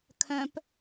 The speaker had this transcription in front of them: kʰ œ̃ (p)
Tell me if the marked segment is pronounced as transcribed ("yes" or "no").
yes